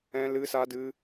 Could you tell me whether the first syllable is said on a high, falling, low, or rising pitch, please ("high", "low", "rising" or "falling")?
high